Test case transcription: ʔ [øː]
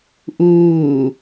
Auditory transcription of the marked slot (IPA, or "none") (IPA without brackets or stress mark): uː